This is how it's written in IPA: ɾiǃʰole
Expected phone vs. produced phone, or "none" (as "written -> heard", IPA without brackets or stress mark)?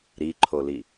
e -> i